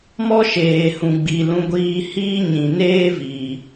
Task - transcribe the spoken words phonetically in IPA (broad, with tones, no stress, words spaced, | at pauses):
mɔ˦ʃeː˨hũ˨ɡ͡bi˨ lũ˧ɡʷiː˧hiː˦ɲĩ˨ neː˦viː˨